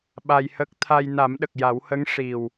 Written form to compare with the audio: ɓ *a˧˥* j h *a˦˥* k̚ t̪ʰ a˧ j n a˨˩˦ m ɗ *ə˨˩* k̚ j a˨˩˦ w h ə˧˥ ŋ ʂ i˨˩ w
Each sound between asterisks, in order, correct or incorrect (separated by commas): incorrect, incorrect, correct